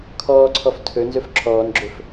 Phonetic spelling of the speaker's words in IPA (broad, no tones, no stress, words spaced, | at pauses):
kʰɔːǀʰɔf tʰɵ nzɵfǁʰɔːnɡ͡ǁɵf